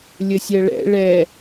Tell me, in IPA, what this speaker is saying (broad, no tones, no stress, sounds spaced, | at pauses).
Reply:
lʲ ə sʲ ɜ ɭ ɛ̰ ɭ ɛ